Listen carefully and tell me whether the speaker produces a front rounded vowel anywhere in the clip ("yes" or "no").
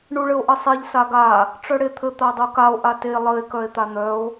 yes